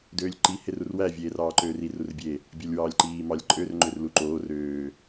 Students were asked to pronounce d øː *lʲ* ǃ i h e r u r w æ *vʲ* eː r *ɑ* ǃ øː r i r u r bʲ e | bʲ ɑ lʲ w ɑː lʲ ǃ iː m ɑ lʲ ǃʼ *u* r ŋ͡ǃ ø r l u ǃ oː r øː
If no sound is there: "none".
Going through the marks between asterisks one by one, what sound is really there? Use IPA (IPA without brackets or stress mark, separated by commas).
lʲ, vʲ, ɑː, ø